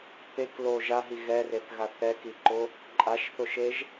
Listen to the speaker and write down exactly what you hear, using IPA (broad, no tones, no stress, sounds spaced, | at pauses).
p e k l o ʒ a ɦ i ɣ ɛ r e θ ɣ a θ ɛ k i ǃ ʊ | ǃʼ a ʃ θ ʊ ʃ e ʒ